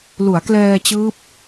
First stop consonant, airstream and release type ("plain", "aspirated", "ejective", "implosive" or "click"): plain